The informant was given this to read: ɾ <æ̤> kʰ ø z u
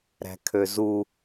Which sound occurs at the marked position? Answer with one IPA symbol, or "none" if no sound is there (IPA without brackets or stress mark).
æ̤